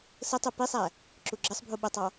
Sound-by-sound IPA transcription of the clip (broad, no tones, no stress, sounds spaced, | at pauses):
s ə tˤ u p i sˤ æ | ǁ u ɡ͡ǁ ə sˤ bʱ u ɓ ʊ tˤ ɑ